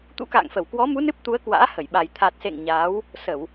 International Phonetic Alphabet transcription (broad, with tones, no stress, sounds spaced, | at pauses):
t̪ ṵ˧˥ k a̰ː˧˨ ŋ f ə˧˩ w k w ɔ˨˦ m u˨˦ n ɨ˦˥ p̚ t̪ u˨˦ ə̯ k w a̰ː˧˥ h ə˧˩ j ɓ a˨˩ j t̪ʰ a˨˩ t̚ s ḛ˧˨ ŋ ɲ aː˨˦ w | s ə˧˩˨ w